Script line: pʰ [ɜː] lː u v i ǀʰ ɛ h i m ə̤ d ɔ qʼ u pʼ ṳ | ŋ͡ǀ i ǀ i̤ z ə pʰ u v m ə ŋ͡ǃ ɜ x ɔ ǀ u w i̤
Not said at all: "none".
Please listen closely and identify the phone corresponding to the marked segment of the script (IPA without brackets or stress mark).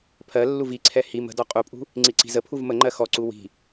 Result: ɜ